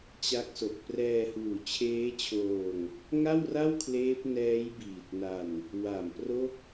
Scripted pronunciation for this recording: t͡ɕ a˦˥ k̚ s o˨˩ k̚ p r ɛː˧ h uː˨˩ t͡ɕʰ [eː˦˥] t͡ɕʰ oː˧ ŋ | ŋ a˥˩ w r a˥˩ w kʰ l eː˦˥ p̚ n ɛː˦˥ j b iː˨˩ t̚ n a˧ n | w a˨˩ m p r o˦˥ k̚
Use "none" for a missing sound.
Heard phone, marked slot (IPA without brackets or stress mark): eː˦˥